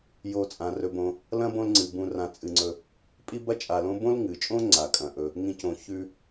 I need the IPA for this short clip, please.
jo˨t͡sʼã˩ rɵ˨bõ˨ | lɐ̃˥bõ˦lŋ͡ǀɨ˩ bũ˨rã˨ t͡sʼɨ˨ŋ͡ǀɵ˨ | pʼi˥bɐ˥t͡ʃʼa˨lõ˥ bõ˥lŋɨ˩t͡ʃʼõ˥ ŋ͡ǀa˩kʼɐ̃˩ʔɵ˨ | ŋĩ˦cõ˨ çʉ˦

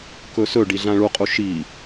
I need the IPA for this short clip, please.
kɵsɵ ɖiɮãɭuqʼu ʃi

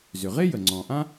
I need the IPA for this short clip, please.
zʏ˩ʁe˥jə˩ ŋ͡ǀɔ̃˩ʔã˥

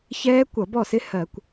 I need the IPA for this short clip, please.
çɛː˦˥kʷʌ˧˩˧bɔ˥˩sɪ˦˥ hɜ˧˩˧kʷ

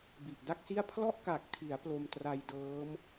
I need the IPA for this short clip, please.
bi˨˩ʔda˥˩k̚si˥˩a̯ pʰlɔ˥˩ʔka˨˩k̚tʰi˩˦a̯ plo˧mtra˧jdɤː˦˥m

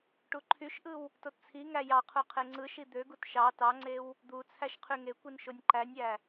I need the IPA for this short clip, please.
ʈuǃʰyʃʔɯw | tott͡sʰiŋæ jɑqʰu qʰeŋ͡ǀɯʃi d̪øɡut ʃɑ tɑŋ͡ǀew | d̪u t͡sʰæʃqʰyŋekʷin ʃonʲǃænʲæ

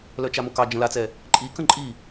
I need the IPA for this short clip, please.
lœt͡ʃamokɑ d͡ʒə̃lat͡sɛ | ǃʼikə̃ ǃʼi

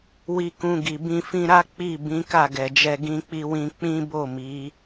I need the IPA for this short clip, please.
wi˧kũ˧ɡi˨ bĩ˧fĩ˧ɾa˦ k͡pi˦˨ bĩ˨˦ka˦˨ɡɛ˨d͡ʒɛ˧ ɡĩ˧k͡pi˧wĩ˧ k͡pĩ˦bo˦˨mi˨˦

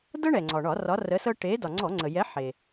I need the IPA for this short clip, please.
dɤ˦ɳɛ˩ŋ͡ǀɒ˩ɳɒ˧˩˧ rɒ˨˥rə˨˥sɤ˦ ʈe˨˥ dɒ˩ŋ͡ǀɔ˧˩˧ ŋ͡ǀə˩ jɛ˨˥ħe˩

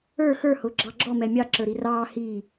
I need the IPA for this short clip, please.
ə˞ xə˞hʊː ɡ͡ǁɑɡ͡ǁɔ mɛmʲɑ ǁə˞ɾirɑː hi

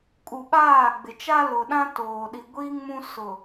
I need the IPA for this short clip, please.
kʼu˨ɓaː˦˨ɡ͡bɪ˨ t͡ʃa˦lʊ˨ɗã˦toː˨ ɗi˨ɡʷiː˦ŋmũ˦ sʊ˨

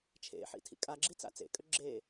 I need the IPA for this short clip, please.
t͡ʃʰḛħḭ tʰḭkʼaɡ͡ǁi t͡sa̰t͡sḛkʼø ɡ͡ǁe

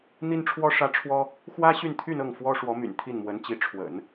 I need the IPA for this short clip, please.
n̪i˥nʈ͡ʂʰwɔ˥ ʂä˥ʈ͡ʂʰwɔ˥ | xwä˥ɕy˥˧n t̪ʰy˥˧nɤ˥˩ŋ fwɔ˥ ʂwɔ˧˥my̰˨˩n t̪ʰi˥˩nmwə˧˥nt͡ɕi˧˥ ʈ͡ʂʰwə̰˨˩˦n

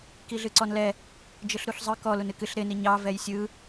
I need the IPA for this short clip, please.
kiɮɨǀɔnlɛ | d͡ʒɯɬɾuɬzˤɯ kɔl unɨkɨɬ ɾɪ niɲɑ vɛjsʲɯ

